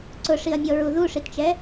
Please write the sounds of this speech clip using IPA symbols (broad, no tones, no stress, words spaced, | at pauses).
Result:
ǀʊʂiɐ̯mʲɔɹu ðuʂitt͡ʃɛ